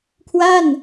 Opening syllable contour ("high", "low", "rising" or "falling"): falling